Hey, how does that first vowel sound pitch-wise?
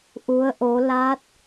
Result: rising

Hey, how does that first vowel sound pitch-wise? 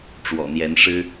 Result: low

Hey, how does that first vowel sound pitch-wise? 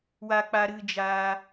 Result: high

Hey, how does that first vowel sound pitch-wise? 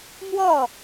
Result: falling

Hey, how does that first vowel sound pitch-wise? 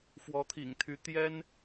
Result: rising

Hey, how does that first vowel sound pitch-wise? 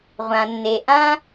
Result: low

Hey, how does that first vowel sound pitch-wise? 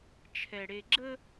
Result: low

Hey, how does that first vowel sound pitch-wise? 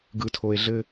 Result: low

